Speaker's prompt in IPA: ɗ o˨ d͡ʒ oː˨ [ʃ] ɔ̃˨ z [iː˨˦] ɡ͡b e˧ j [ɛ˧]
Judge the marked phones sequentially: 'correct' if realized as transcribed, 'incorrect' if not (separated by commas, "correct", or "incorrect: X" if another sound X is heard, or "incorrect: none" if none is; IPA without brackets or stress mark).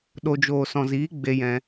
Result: incorrect: s, correct, incorrect: ɛ̃˧